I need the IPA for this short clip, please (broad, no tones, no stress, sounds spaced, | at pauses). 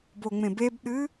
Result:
b o ŋ͡m ẽ b e b ɗ ɨ